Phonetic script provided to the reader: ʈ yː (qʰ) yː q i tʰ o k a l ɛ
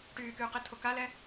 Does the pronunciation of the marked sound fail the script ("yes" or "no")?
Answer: yes